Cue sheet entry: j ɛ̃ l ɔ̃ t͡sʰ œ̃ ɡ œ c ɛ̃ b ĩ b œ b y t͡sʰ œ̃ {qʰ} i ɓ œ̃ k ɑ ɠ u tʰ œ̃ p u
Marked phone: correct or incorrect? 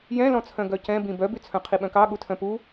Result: correct